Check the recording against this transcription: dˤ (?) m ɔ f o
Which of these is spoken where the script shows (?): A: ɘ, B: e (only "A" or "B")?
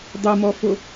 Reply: A